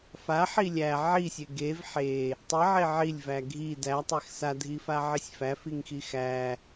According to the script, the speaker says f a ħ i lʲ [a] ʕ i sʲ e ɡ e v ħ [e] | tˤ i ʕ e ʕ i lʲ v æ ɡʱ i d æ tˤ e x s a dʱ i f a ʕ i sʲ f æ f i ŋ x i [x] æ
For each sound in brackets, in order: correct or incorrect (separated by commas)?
incorrect, correct, correct